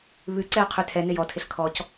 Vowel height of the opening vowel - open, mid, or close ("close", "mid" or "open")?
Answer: close